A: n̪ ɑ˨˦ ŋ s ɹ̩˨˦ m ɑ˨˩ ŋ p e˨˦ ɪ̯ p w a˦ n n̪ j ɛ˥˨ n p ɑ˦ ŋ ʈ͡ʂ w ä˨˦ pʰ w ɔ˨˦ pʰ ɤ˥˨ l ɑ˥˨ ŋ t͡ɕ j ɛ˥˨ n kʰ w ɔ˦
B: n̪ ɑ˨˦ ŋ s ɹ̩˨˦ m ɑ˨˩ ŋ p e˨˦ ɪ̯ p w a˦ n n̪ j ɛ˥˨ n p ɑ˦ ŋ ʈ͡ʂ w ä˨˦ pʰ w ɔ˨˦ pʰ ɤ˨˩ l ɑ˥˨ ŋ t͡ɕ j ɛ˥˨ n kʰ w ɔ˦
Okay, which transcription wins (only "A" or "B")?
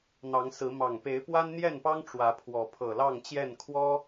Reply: B